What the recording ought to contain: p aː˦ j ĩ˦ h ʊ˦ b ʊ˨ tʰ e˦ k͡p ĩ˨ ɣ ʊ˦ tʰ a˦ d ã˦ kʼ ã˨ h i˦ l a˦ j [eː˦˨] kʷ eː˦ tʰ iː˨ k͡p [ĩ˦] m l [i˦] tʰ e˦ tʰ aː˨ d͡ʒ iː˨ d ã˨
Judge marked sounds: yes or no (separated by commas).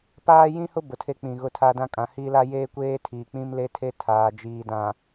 no, yes, no